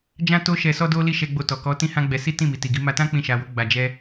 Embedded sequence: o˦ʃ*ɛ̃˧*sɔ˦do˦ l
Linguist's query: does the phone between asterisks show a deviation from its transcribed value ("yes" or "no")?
yes